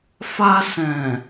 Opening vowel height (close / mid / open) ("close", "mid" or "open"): open